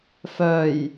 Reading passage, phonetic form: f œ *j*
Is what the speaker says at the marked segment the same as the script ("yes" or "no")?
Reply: yes